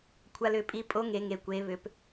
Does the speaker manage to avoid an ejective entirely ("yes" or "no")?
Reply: no